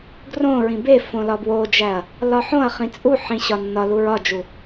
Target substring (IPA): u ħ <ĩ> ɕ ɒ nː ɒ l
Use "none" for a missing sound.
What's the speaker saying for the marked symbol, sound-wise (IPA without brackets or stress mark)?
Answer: ĩ